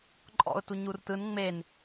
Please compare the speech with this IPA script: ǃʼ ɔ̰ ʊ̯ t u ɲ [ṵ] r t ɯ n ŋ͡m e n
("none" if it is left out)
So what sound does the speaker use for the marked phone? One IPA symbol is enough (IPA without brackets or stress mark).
u